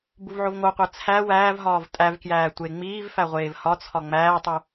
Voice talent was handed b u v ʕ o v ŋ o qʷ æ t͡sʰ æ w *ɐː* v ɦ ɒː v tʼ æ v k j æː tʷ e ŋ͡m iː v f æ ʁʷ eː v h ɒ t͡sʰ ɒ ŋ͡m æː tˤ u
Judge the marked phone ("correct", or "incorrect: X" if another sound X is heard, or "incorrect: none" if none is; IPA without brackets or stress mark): incorrect: æː